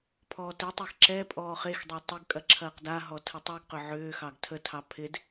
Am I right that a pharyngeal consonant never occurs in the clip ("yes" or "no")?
no